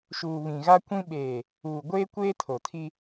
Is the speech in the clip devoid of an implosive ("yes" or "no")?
no